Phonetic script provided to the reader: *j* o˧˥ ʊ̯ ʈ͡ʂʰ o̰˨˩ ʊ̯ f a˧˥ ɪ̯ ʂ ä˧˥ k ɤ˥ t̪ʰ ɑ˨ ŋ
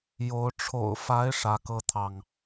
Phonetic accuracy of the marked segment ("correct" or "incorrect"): correct